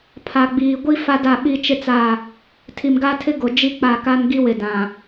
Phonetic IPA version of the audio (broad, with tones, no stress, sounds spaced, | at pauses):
pʰ a˨ ɡ͡b iː˨ ɡʷ i˦ f a˦ d a˦˨ ɓ i˦ t͡ʃ ɪ˦ t͡s a˦˨ | tʰ i˨ m ɡ a˦ tʰ ɪ˦ ɡ o˨ d͡ʒ i˦ k͡p a˦˨ k a˦ n ɡ i˦ w ɪ˨ d ã˨